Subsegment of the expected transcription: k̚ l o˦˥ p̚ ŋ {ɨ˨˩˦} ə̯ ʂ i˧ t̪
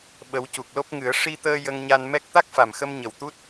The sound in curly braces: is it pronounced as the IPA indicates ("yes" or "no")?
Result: yes